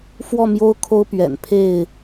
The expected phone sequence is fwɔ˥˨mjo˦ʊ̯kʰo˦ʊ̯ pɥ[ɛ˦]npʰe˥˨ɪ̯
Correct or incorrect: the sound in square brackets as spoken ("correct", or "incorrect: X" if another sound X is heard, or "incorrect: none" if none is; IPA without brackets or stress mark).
incorrect: ɛ̰˨˩